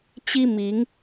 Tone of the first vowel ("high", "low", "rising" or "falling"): high